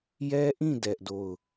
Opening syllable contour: high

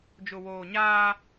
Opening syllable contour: low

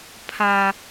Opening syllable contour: high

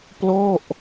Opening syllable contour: falling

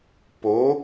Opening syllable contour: rising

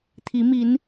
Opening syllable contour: rising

